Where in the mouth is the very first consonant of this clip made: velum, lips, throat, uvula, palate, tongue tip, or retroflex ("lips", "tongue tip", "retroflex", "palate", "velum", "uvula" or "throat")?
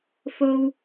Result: lips